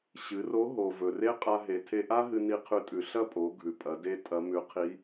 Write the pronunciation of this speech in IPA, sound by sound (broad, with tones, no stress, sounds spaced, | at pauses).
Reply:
ɕ ɨ˩˧ r o˧˥ ɦ o˩ v ɵ˩ r e˥ qʼ a˧ ɦ e˩˧ tʰ e˧ ʔ a˥ ɦ ɨ˧ n i˧ qʰ ʉ˧ tʼ ʉ˩ ɬ ɐ˥ pʼ o˩˧ ɡʱ ʉ˩ pʼ ɐ˩˧ d e˧˥ tʼ ɐ˧˥ m ʉ˧˥ qʰ i˧˥